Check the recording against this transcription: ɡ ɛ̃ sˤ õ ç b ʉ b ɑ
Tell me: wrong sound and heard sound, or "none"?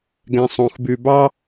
ç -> x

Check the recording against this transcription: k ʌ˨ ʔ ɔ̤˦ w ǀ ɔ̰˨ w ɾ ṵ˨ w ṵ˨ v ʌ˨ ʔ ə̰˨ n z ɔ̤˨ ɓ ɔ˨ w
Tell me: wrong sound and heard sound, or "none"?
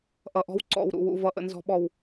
k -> ʔ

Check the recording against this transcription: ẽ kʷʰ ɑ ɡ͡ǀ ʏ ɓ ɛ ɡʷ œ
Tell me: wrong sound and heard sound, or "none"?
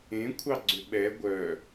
none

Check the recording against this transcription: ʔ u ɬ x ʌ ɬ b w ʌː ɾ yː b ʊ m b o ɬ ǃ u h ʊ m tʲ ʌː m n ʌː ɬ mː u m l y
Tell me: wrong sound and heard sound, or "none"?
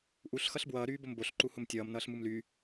mː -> m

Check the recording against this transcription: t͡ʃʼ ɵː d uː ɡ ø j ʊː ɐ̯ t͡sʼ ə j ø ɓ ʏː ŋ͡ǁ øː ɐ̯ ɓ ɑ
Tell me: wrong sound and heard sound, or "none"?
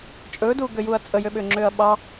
ʊː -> uː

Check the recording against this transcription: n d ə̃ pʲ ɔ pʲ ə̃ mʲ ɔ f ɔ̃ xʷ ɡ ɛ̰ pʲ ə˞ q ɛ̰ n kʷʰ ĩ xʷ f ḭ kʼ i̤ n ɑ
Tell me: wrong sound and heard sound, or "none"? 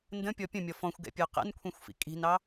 none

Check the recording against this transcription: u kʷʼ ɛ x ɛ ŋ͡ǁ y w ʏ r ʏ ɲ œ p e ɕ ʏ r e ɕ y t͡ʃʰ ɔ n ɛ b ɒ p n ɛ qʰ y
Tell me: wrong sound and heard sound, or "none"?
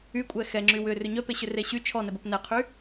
u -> y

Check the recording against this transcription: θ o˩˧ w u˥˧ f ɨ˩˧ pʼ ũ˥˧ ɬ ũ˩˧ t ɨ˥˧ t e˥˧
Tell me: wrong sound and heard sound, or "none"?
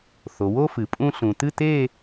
u˥˧ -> o˥˧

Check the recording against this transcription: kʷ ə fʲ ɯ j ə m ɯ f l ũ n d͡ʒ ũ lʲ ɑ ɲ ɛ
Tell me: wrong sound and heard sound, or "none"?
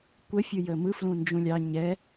none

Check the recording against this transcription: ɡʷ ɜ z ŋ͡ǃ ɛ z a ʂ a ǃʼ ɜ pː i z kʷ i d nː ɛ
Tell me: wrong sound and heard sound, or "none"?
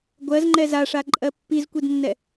none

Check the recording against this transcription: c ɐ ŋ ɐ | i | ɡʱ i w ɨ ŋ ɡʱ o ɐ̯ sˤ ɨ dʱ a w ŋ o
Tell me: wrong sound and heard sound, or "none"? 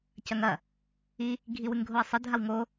none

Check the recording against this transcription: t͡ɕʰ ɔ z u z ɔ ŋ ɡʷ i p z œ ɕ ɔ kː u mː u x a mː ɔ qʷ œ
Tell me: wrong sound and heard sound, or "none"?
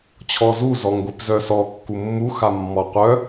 ɕ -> s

